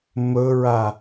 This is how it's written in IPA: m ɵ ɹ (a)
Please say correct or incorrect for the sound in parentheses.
correct